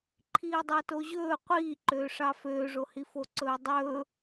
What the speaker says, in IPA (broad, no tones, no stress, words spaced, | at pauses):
ǃʰiːdˤɑtoʑɵː qʷiːǃøːʂɑ føːʐohifo ǀɵːdˤɵː